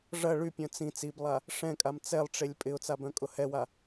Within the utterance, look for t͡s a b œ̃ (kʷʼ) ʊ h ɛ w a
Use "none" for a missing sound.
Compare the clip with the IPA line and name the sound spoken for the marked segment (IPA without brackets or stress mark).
kʼ